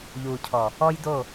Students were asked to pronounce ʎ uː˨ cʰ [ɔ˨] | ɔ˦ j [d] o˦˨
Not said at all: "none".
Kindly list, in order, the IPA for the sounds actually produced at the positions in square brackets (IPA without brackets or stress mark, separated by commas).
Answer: ɔ˨, d